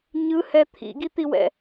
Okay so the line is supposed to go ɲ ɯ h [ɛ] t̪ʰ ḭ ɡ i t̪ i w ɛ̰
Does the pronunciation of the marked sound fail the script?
no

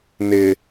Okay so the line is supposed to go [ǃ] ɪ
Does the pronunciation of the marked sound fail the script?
yes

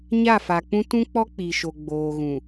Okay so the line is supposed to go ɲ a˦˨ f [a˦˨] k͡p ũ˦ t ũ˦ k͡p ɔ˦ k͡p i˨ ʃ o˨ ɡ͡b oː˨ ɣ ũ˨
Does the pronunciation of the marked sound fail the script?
yes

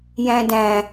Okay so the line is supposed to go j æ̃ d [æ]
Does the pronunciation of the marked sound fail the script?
yes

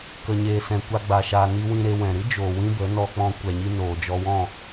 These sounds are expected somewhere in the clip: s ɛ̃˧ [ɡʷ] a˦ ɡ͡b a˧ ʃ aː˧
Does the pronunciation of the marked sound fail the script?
yes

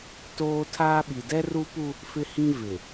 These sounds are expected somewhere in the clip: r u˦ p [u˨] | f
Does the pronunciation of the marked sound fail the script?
yes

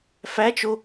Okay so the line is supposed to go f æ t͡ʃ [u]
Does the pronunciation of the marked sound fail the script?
yes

